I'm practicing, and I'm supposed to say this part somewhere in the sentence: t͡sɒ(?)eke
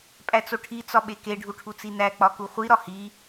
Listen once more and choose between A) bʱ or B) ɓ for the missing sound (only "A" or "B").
B